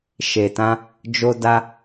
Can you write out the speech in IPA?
ʃ e˨ t ã˧ | d͡ʒ o˧ d a˧

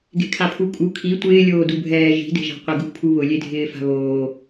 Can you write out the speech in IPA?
ɡ e̤ kʰ a pʰ u kʼ u kʰ i tʷ ɪː lʲ oː d u bʱ ɛː ʒ i̤ d e̤ ʒ a̤ qʷ ɛ ɡ ṳ pʰ u β ʊ lʲ e dʱ ɪː f a̤ β oː

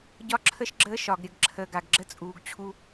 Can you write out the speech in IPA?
ɟ ɒ˦ ǁʰ ə˦ ʃ ɡ͡ǁ əː˦ ʃ ɒ˨ ɡ ɾʲ ə˨ ɡ ǁʰ əː˨ ɡ a˨ ɡ ɡ͡ǁ ə˦ t͡sʼ uː˨ ɡ t͡ɕʰ u˦

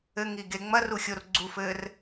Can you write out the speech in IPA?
ɘ ŋ i ɡ e ŋ͡m ɐ r u xʲ o r ɡ͡ǀ u f ɘː r

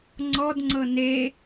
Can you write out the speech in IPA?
ŋ͡ǀ ɔ d ŋ͡ǀ ɤ n e

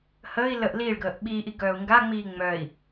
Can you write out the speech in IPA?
h əː i̯ l ə ʔ l iː ɭ ɡ əː ʔ ɓ iː ʔ i ɡ œː u̯ ŋ ɡ a ŋ͡m iː ŋ͡m œ i̯

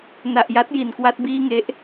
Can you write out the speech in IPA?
n a˨˩ ʔ j a˦˥ t̚ j i˨˩ n k w a˥˩ t̚ b iː˥˩ ŋ e˦˥ ʔ

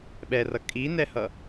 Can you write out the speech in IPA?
ɓ ɛ r ʌ kʼ i n ɛ h ʌ

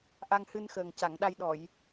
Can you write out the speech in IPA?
ʔ a˧ ŋ h ɨ˧ n x əː˨˩ ŋ c a˨˩˨ ŋ ɗ a˧ j ɗ ɔ˨˩˨ j

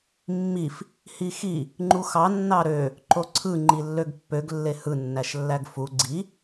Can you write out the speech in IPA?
mː i f | h i x i | ŋ͡ǃ u x ɑ nː ɑ ɾ ø | ǃ o ǀʰ ɯ ŋ͡ǃ i lː ø ɡ pː ø ɡ lː e h ɯ nː æ ʃ lː æ ɡ f u ɡ͡ǀ i

